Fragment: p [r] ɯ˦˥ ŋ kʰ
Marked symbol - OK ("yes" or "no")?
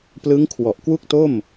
no